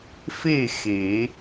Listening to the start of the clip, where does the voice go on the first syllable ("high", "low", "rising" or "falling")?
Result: falling